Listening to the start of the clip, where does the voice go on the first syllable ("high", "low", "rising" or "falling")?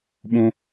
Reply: high